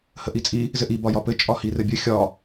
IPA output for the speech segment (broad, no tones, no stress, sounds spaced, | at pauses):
h ə ʔ i t͡sʼ i | z ɘ ʔ i b ɒ j ɒ p ɘ t͡ʃʼ ɒ h i r ɘ bʲ ɘ xʲ ɒ